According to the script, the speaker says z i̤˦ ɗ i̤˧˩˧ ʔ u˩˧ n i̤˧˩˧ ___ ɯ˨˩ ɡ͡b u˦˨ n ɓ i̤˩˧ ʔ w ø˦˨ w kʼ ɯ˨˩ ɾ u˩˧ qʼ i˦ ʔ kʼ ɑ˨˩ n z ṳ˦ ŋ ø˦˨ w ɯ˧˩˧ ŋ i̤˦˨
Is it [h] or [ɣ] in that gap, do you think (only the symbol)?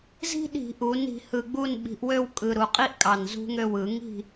h